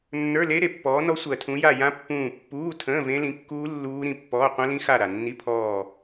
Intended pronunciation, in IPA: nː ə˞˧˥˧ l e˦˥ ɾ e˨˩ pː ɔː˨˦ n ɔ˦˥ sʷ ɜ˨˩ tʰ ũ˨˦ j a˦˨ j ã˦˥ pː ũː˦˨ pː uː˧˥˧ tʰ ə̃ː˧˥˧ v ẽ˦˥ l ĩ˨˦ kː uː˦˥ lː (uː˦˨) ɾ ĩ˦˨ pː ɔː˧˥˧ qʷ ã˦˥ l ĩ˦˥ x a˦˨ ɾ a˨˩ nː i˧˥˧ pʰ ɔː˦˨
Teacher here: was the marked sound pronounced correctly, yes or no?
no